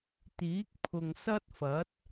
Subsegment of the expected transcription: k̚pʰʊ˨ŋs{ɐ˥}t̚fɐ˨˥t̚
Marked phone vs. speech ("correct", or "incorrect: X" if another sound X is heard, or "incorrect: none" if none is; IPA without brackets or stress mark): correct